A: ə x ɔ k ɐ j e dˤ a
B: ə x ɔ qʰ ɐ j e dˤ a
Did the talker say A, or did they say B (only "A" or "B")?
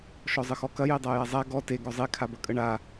A